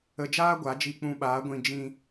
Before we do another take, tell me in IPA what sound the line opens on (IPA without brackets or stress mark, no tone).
ə